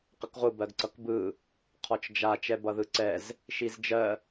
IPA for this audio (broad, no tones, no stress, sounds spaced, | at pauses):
q ə k ʁʷ ɯ b ɜ ɡ ǀ ʌ k b ɯ | qʰ ɔ t͡ʃ d͡ʒ a t͡ʃ ɛ b ʌ ð ɯ ǀ ɛ z | ʃ i z d͡ʒ ɜ